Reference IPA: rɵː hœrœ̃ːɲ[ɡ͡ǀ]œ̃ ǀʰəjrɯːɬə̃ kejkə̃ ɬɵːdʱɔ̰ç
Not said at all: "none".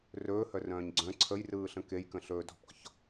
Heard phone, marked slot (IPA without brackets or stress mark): ɡ͡ǀ